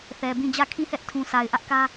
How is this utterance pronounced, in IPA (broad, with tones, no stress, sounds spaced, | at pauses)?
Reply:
θ ɛ˨ b ĩ˦˨ d͡ʑ ä˦˨ kʰ ĩ˦˨ h ɛ˦ ʔ tʰ ũ˨ sʰ a˨ ɪ̯ ʔ ä˦ ʔ k ä˦